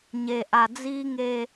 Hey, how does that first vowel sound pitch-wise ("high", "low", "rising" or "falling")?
low